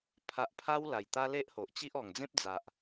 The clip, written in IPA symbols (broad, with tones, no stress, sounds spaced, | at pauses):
pʰ a˨ ʔ pʰ a˧ w l a˨˩ j t̪ a˦ l e˦ ʔ h o˨ ʔ t͡ɕ i˦ ʔ ɔ˨˩ ŋ d͡z ẽ˦ p̚ d͡z a˨ ʔ